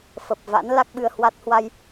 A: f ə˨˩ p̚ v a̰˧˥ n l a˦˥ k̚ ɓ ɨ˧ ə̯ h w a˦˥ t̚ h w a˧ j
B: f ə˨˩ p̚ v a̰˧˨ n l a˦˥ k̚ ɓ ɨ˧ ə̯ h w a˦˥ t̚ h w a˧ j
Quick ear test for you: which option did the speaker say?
A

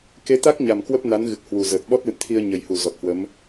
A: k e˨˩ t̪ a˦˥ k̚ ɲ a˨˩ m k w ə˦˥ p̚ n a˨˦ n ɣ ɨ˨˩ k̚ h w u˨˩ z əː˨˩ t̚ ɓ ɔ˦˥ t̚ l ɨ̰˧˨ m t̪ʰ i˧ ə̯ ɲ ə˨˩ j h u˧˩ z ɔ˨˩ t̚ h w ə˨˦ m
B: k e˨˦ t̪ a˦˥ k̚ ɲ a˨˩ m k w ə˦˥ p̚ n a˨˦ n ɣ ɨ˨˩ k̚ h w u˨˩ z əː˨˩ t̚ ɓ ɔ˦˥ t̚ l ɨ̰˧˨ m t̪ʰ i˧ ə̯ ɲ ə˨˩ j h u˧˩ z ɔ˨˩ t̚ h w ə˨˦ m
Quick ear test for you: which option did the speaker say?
B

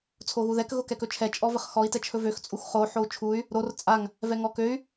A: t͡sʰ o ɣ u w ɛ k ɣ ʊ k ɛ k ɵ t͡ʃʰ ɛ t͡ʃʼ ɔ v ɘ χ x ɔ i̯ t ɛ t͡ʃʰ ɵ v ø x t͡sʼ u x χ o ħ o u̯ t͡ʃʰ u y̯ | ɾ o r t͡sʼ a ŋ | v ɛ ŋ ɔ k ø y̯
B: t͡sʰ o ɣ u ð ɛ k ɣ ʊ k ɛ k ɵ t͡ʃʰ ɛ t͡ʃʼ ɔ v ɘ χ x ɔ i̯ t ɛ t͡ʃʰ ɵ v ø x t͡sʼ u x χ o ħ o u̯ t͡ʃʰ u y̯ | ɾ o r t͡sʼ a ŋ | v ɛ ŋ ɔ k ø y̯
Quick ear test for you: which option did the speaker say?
B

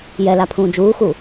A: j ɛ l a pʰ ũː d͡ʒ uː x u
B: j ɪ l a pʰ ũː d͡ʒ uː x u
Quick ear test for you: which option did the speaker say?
A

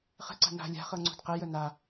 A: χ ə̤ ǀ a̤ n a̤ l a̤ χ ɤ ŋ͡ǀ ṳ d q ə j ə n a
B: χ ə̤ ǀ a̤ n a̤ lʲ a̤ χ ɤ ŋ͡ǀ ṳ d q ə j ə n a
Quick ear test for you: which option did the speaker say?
B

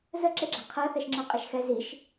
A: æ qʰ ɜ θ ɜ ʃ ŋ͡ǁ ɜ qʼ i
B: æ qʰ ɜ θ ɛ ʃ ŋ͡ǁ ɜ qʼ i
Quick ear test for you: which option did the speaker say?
B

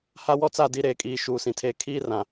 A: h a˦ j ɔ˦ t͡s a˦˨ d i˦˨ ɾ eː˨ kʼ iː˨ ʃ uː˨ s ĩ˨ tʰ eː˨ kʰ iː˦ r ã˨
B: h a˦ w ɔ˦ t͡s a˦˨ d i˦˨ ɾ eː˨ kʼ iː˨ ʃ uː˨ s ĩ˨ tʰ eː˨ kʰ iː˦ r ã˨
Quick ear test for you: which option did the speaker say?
B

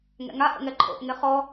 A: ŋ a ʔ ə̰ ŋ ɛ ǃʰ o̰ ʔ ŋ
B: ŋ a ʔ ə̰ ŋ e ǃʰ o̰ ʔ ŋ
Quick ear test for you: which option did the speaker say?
A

